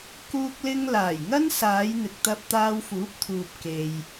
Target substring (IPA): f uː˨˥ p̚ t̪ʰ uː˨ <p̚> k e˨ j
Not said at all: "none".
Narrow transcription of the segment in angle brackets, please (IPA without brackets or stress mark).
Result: p̚